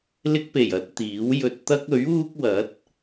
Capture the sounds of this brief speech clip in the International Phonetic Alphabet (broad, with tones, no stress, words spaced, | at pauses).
lɪ˧k̚pe˨˩jɐ˧t̚ t̪iː˨˥wjɵ˧t̚ t̪ɐ˥k̚ɵ˨˥ɥuː˥k̚wɐ˨˥t̚